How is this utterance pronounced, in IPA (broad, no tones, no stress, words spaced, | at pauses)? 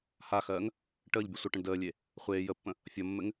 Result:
haxɜːŋ | ʈəːʎbʲə sʷəʈə̃ɳ dəːlʲe | χʷeː jəpːə̃ | fʲʌmːɘŋ